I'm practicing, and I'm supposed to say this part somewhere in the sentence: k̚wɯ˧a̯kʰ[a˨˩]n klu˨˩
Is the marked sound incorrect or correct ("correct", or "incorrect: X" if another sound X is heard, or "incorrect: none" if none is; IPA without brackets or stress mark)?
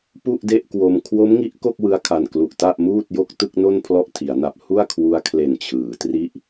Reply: correct